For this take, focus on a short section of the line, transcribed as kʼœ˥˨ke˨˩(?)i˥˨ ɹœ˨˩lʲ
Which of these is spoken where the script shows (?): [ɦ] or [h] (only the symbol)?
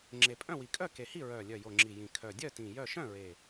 h